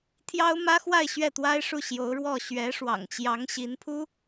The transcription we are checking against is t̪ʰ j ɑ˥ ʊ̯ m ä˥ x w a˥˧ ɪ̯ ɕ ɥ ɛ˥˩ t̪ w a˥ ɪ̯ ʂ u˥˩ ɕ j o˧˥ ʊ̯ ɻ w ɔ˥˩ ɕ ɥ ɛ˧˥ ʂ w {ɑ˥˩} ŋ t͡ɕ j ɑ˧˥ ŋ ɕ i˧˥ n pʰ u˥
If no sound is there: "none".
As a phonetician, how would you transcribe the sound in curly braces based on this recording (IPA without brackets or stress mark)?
ɑ̰˨˩